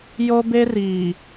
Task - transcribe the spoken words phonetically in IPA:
jo˦be˦riː˨

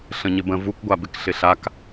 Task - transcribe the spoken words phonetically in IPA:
ɬə̃ɲɪbə̃ vukɡʷabɪk ɬɪɬak

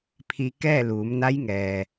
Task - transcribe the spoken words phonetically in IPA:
pʰi˧ kɛː˥˨luː˩˧mna˧˥jŋɛː˩

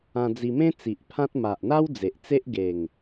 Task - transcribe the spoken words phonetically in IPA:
ã˧d͡zi˧ mẽ˦ t͡si˨ʔpʰã˦t̚ ma˨ʔn̪a˦w d͡ze˨ʔt͡se˦ʔ ɡe˨˩ŋ

